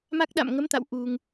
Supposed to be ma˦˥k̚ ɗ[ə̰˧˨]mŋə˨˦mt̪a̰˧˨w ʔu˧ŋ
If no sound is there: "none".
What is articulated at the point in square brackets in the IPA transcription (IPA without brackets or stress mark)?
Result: a̰˧˨